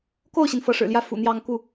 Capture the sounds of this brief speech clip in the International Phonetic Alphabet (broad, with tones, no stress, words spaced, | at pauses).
ko˥˩ʊ̯ɕi˩n fɤ˧˥ʂɻ̩˨˩ljä˥˩ fṵ˨˩n̪jɑ˥˧ŋ ku˥˩